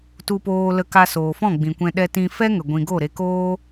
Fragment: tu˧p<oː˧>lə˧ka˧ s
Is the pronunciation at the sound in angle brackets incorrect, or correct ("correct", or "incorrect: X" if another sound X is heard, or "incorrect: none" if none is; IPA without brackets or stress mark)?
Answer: correct